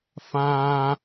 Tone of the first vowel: high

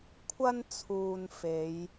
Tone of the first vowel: high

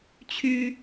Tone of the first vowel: high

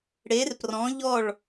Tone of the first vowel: rising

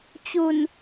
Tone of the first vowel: low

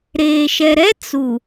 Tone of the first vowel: low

